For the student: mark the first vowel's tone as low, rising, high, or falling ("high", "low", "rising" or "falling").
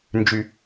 low